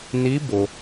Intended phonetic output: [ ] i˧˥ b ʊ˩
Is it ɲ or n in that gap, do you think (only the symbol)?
n